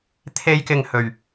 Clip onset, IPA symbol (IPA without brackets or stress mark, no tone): t̪ʰ